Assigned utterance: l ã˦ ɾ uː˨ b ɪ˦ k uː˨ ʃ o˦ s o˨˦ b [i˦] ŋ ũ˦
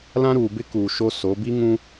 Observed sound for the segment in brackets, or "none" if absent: i˦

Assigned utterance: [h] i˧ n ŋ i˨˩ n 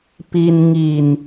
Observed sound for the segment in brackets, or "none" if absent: p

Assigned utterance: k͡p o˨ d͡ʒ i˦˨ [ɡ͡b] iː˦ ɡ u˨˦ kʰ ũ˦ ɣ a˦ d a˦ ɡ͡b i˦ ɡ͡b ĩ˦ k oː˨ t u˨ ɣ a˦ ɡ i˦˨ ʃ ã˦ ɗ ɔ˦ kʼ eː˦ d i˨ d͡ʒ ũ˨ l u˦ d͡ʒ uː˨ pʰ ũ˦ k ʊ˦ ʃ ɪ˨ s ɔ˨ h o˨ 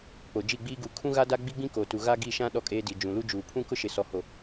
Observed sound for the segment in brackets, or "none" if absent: ɡ͡b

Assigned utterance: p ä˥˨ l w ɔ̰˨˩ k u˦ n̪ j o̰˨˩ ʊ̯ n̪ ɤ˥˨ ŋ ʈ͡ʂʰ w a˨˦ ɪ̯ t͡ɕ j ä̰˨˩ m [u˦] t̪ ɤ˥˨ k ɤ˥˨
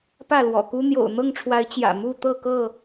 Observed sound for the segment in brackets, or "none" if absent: u˥˨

